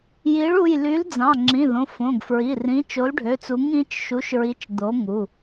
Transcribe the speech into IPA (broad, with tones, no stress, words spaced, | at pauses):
ji˨˥ɭu˩˧˩j ly˨˥l d͡zɑ̃˩˧˩ŋ͡ǁĩ˩˧˩ ðõ˩˧˩ fõ˩˧˩ɡfɹi˩˧˩rĩ˨˥ t͡ʃo˨˥lɖʱø˩˧˩t͡su˨˥ŋ ĩ˨˥t͡ʃʃu˨˥ʃɹi˨˥t͡ʃ d̪o˨˥ŋu˩˧˩